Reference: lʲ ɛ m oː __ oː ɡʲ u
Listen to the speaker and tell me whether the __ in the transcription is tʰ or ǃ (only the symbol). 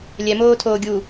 tʰ